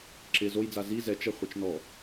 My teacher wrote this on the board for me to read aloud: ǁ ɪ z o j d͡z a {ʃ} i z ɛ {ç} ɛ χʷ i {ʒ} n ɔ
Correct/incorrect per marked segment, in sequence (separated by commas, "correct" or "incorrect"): incorrect, incorrect, incorrect